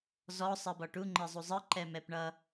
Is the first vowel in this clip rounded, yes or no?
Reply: yes